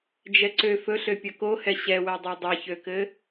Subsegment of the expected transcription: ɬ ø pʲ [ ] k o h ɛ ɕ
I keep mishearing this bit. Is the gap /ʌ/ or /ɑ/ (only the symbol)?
ʌ